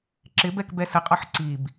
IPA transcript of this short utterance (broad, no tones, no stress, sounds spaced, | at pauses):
ǁ ɪ b ɛ k b ɛ s ə qʼ ɒ ħ ǀ i b